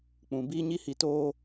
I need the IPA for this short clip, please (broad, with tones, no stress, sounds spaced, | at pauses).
k͡p ũ˨ b iː˦ ɲ i˧ h i˨ t oː˧